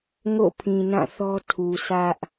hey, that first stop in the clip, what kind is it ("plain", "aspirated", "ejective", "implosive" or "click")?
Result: aspirated